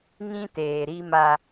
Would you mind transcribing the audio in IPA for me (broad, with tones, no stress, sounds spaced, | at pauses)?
ŋ ĩ˦ t eː˨ ɾ i˦ m a˦